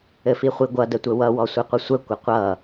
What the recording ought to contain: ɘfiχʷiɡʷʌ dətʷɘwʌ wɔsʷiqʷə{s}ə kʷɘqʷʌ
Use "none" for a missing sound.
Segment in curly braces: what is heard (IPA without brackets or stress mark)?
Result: sʷ